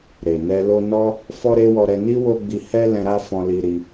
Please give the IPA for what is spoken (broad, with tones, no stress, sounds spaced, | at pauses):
ɾ e˨ n ɛ˧ l o˧ n ɔ˦ | f ɔ˦ ɾ e˦ w ɔ˧ ɾ ɛ˧ n i˦ w o˦ ɡ͡b i˧ h ɛ˦ l ɛ̃˧ ɾ a˦ f ɔ̃˧ l i˧ ɾ i˧